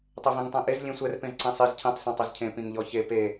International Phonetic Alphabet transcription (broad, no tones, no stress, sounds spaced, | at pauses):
tˤ ɛ v ɛ̃ ŋ tˤ ɛ̃ ʔ e z lʲ ẽ sʷ ɛ r p ẽ z ǀ ĩ sˤ i z cʰ ĩ tˤ sˤ ɛ̃ tˤ e z cʰ ẽ p ĩ ŋ ʎ ɔ ç e p e